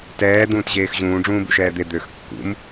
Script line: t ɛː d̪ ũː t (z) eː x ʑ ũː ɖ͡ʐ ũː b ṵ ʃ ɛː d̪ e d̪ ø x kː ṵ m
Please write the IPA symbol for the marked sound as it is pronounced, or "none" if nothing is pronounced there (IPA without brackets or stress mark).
ʑ